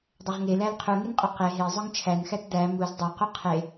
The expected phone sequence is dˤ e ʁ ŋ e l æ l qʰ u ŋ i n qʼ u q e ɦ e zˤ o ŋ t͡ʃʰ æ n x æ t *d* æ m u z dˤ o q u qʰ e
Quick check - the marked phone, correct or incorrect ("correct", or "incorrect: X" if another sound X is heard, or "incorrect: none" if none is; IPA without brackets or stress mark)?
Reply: correct